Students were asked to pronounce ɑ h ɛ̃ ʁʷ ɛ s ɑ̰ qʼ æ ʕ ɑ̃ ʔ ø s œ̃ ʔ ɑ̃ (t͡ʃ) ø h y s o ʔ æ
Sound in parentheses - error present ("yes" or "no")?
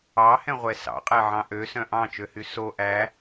no